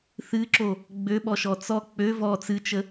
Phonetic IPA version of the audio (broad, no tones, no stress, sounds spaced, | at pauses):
θ ɨ ǁ o | ɡ͡b ø ɓ ɔ ʃ ɔ t͡s ɔ k͡p ø v ɔ t͡s ɨ t͡ʃ ə